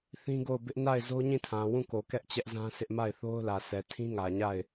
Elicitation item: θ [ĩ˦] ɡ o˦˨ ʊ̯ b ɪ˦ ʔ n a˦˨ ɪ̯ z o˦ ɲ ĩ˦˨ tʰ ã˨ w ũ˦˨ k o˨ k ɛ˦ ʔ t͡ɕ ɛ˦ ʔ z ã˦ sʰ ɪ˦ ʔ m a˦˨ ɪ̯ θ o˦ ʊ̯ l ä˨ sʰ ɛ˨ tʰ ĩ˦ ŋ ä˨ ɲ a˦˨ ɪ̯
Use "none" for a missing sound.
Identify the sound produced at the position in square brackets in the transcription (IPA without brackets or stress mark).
ĩ˦